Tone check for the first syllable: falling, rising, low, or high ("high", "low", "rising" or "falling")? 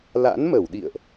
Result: rising